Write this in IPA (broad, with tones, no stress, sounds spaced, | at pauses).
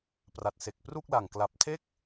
p r a˨˩ t̚ s e˨˩ k̚ p r u˥˩ k̚ l a˨˩ ŋ k l a˨˩ p̚ tʰ e˥˩ k̚